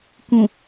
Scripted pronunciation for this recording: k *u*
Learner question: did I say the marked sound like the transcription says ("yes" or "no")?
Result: no